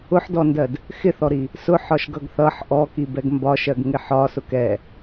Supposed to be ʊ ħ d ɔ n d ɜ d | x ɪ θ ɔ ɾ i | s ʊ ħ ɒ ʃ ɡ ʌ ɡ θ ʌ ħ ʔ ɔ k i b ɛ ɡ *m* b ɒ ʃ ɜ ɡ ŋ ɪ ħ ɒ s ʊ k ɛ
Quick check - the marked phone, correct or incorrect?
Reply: correct